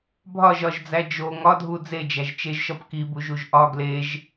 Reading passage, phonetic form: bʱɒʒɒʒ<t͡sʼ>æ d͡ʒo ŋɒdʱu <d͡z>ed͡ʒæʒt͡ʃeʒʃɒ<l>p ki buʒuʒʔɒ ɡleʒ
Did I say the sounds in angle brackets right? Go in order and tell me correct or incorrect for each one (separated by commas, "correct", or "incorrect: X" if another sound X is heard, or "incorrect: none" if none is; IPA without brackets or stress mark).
incorrect: d͡z, correct, incorrect: none